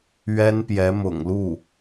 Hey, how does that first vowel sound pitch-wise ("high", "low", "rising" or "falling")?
high